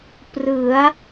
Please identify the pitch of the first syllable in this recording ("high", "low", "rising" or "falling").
rising